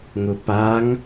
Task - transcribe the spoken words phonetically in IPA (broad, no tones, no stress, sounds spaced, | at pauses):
ŋ ʊ p a ŋ